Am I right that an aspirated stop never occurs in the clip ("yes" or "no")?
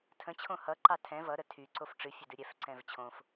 no